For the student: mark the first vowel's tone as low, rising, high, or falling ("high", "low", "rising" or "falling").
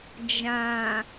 low